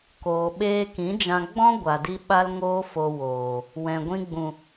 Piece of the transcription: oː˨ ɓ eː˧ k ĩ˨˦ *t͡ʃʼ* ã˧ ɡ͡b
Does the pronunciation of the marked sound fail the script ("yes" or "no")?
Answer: yes